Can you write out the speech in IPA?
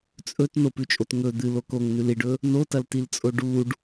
t͡sʼɵt nopʉt͡ʃʼot ŋɵ d̪ɨlok oŋnʉl iɖɵ | notɐltilt͡sʼo ɖuɖ

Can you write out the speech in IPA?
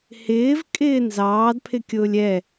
hɪːvkʼɪː nzɑːdpʰɪkʲʊːlʲ ɛ

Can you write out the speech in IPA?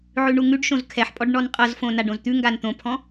ʕʉɳuŋʉɖʃõz kʰɛħpʼɔɖ ɳɔnqʼɤzfõ naɖõzt̪ʉŋɡan t̪õpʰɔ̃

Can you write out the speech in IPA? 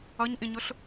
ʌɲʔĩɲʊɬ

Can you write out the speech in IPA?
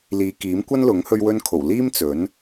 liː˨˧kiː˨˥m kʷɐ˥nlʊ˨˥ŋ hɵ˧ɥwɵ˧nkʰo˨˩w liː˥mt͡sɵ˨˥n

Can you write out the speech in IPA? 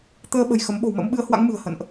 t̪əː˧ɓə̤˨˩j xə˨˦m ɓo̤˨˩wmə̰˧˥m ɓɨ˨˦ə̯hwa̰˧˥ŋmɨ̤˨˩ə̯ hə̰˧˨nʔ

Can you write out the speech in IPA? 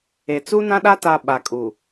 e˨t͡su˦nã˦ɗa˦ ta˨ ɓa˨kʼu˨

